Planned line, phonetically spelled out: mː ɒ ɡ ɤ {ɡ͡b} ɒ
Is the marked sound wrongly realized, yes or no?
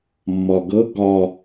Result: yes